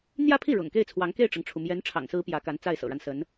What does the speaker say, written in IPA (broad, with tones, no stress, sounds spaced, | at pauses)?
n̪ j ä˥˧ pʰ i˥˩ ɻ ʊ̰˨˩ ŋ k e˥˩ ɪ̯ t͡sʰ w ɑ˧˥ ŋ k e˥˩ ɪ̯ ʈ͡ʂ ɤ˩ ŋ ʈ͡ʂʰ u˩ m j ɛ˧˥ n ʈ͡ʂʰ ɑ̰˨˩ ŋ s ɹ̩˧˥ p j ä˧˥ k a˧˥ n t͡s a˥˩ ɪ̯ s ɤ̰˨˩ ɻ a˦ n s ə˧˥ n